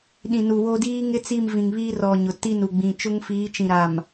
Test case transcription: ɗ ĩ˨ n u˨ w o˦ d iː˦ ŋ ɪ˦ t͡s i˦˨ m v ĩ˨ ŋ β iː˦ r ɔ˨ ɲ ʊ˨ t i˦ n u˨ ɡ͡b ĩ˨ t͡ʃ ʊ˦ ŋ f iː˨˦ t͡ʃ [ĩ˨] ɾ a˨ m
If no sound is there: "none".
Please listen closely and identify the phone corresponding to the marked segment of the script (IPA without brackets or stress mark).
ĩ˨